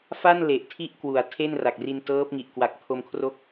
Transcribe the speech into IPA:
f a˥˩ n l e˨˩ ʔ tʰ i˥˩ ʔ k w u˩˦ a̯ tʰ e˥˩ n r a˨˩ k̚ r i˧ n t ɤː˦˥ p̚ ŋ i˨˩ ʔ k w a˨˩ k̚ pʰ o˧ m kʰ r o˦˥ k̚

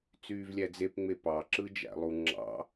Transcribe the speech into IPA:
t͡s yː v lʲ æ d͡z e p ŋ͡m e p ɑ ǁ ɯ d͡ʒ æ̰ lˠ u ŋ͡ǁ ɑ̰

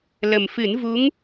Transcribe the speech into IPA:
l ə˨˩ m f ɨ˨˩˦ n v u˧˥ ŋ

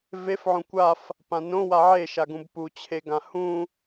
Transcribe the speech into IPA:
v e f ʕ õ kʷ a f | p ã n õ w a ʕ e ʃ a ɡ ũ b p u t͡ɕʰ e ɡ ã h ũ

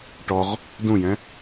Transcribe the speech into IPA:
ʈ ɔ ʁ | d ũ j ɛ̃

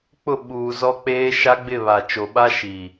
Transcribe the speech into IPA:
k͡p ʊ˦˨ ɓ uː˨ z ɔ˦ k͡p eː˦ ʃ a˦ ɡ͡b ɪ˦˨ β a˨ t͡ʃ o˨ ɓ a˦ ʃ i˨

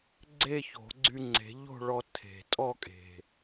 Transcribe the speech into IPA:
ɡ͡ǀ e˥˧ ç o̤˨˩˦ ɡ͡ǀ y˧ ŋ͡ǀ e̤˨˩˦ ʎ o̤˥˧ ɭ ɔ˧ tʰ e̤˨˩ tʼ ɔ˥˧ kʼ e̤˨˩

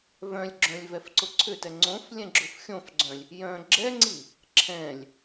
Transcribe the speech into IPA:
v œ̃ lʲ ɡ͡ǁ œ̃ lʲ v ɛ f ǀ ʊ ǀʰ ʏ t ɛ ŋ͡ǀ õ f lʲ ɛ̃ ɡ͡ǁ ʊ f xʲ õ f ɡ͡ǀ œ̃ lʲ | j œ̃ ɡ͡ǁ ɛ ŋ͡ǀ i | ǁʰ ɛ̃ lʲ

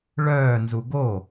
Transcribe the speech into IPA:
ɭ œː n z u ɡ o

